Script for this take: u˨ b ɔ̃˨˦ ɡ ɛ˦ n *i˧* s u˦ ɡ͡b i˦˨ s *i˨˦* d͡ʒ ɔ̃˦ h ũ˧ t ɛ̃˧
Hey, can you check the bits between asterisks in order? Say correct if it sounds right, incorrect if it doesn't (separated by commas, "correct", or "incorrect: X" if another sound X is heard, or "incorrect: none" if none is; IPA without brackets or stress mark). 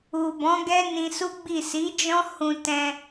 incorrect: ĩ˧, correct